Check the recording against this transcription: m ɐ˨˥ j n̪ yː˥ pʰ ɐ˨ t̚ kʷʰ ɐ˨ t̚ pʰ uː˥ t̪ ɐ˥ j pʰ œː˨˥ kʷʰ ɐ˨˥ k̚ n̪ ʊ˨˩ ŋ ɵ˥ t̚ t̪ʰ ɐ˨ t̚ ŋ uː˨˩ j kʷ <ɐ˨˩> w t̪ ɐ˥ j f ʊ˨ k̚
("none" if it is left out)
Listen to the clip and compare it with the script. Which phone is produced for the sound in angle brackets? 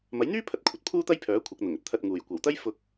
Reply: ɐ˨˩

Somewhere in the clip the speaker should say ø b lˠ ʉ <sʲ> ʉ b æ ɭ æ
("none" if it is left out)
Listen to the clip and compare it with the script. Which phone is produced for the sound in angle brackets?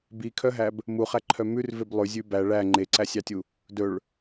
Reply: zʲ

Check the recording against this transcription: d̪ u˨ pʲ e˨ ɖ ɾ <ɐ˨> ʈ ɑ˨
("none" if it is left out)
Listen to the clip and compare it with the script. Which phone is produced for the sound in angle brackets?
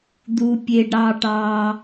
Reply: ɑ˨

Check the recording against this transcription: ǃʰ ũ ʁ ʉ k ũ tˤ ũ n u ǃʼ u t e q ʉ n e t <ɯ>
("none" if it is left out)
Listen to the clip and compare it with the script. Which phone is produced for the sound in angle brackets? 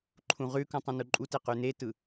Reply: ɯ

